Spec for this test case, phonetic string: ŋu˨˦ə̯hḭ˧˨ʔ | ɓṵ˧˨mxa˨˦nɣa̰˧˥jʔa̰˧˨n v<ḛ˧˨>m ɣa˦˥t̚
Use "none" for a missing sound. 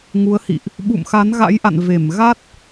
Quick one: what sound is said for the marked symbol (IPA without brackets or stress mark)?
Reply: e˧˩